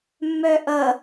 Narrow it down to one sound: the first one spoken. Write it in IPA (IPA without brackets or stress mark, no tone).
mː